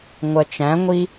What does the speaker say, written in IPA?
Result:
ŋʷɜt͡ʃæ̃ŋʷi

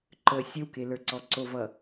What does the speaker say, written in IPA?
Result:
ǃə sʲəwkelə˞ǀɔ ǀovʌ

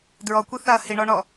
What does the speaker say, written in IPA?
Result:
dɹɔkʷiθaɐ̯ hiɳɔɳɔ

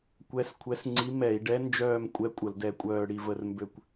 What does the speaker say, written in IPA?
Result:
kʷɛ˧˥skʷʰɛ˧˥sŋ͡ǀi˧˥ mɛ˧˩˧i̯ɖɛ˧˥nd͡ʒœː˦˨mkʷʼɛ˧˥ kʷʼə˧˩˧ldɛ˦˨kʷʼœː˦˨ ɽi˦˨və˦˨rmbø˦˨kʷ

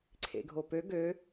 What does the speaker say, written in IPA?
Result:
ǀʰḛɡʱopø ɡø

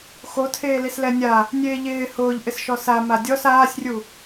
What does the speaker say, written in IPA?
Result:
xotʰeː lislɛnʲa | nʲeːʎɪː hʊːʎʔɪsʃɔ sa madʲɔs aːsʲrʲu

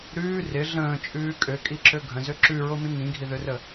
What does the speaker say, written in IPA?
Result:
ɾʉː rɪ ɮə̃ːt͡ʃʼʉː kʼøkʼiǁø ɡʱə̃zø ǁʉɹomĩ ŋĩɡʱiðørə

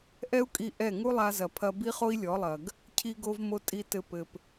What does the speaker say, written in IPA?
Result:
ʔɛ˦u̯kʼi˧ ʔɛ˦˨ ŋu˦lˠa˧zɐ˨pʰɐ˧ bi˦χo˦i̯lʲɔ˨˦lˠɐ˨ɡ | cʰi˦ɡo˦vmo˦ tʼi˧tɘ˧ pɘ˨p

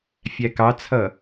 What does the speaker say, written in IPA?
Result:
fʲækɑt͡sʰʌ

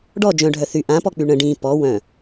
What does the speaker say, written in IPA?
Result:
ɖɔ d͡ʒœ̃ɖʱœ θy ʔãpɔk͡py ɳə̃ ɖĩ pɔ wœ̃

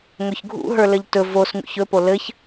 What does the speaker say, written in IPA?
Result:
ŋɵçɡʱṵ ɦə˞lɘʎtɵ vosŋṵç ɵpo lɘç

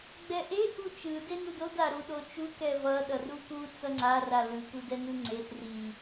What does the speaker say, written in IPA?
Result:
ɡ͡bɛʔe ʔut͡ʃɯ denudod aɾuɗot͡ʃu kɛvʌ ɗʌruku t͡sʌŋ͡ǀa ralɯ kudɛnɯŋ͡ǀes ri

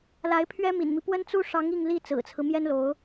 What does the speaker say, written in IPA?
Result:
la˧˥ɪ̯pʰɥɛ˥ mḭ˨˩nmi˦ pwə˥nt͡su˥ ʂɑ˧˥ŋ i˥˧ŋli˥˩ t͡sɹ̩˨˩t͡sʰɹ̩˦ mjɛ˥nlo˧˥ʊ̯

